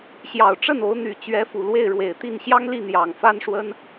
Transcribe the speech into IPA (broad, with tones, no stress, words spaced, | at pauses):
ɕjɑ˨˩ʊ̯ʈ͡ʂə˥˩no˧˥ʊ̯ n̪y˨˩t͡ɕɥɛ˧˥fu˨˩ lwe˥˩ɪ̯ɻwe˨˩ɪ̯t̪i˥˩n ɕjɑ˥ŋli˥˩n̪jɑ˨˩ŋ fa˥nʂwə˥n